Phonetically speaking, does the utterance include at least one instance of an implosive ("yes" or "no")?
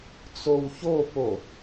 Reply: no